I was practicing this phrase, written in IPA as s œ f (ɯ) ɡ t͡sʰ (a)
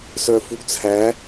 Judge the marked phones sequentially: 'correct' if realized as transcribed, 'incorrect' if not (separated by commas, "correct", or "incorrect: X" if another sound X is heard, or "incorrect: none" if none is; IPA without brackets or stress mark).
incorrect: u, incorrect: æ